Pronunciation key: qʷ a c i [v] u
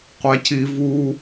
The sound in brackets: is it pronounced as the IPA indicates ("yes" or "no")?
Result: yes